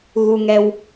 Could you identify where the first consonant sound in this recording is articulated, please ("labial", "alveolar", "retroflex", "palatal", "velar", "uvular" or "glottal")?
velar